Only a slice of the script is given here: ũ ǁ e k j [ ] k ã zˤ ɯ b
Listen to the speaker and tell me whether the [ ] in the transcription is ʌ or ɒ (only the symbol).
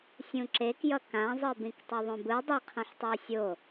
ʌ